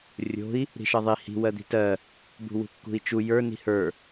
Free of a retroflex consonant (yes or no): yes